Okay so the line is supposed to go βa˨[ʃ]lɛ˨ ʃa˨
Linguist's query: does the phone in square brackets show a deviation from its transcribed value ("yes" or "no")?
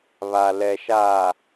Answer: yes